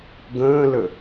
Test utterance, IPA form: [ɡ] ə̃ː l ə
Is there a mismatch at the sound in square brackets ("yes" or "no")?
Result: no